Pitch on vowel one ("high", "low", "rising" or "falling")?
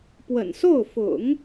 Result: low